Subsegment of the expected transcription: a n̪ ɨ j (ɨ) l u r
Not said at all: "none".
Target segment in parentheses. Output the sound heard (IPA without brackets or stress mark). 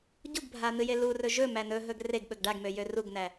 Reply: e